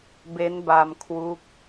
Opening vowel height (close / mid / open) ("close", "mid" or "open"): mid